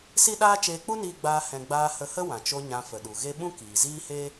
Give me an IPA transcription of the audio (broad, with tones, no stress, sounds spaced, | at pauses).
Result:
s i˦ ɗ aː˦ t͡ʃ eː˧ k͡p u˦ n iː˧ ɡ͡b aː˧ h ɛ̃˧ ɡ͡b aː˧ h ə˧ h ə˦ w ã˨ t͡ʃ o˧ ɲ ã˧ f ə˨ ɗ u˨ ɣ e˦ ɓ ũ˦ k iː˨ z iː˦ h e˦